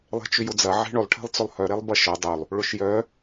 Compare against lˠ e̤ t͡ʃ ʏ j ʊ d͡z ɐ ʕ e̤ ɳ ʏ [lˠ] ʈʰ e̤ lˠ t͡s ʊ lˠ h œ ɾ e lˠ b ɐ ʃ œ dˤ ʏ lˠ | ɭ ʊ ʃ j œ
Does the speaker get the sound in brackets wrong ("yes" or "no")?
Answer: no